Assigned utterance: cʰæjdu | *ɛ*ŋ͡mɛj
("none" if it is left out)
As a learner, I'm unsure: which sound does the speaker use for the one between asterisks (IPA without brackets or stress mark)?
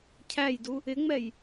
ɪ